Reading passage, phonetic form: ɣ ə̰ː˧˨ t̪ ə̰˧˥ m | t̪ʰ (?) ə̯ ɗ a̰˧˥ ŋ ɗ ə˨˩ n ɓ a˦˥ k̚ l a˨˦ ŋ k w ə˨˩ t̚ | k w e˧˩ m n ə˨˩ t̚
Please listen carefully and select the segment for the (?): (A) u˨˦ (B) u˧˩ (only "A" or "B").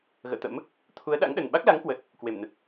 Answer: A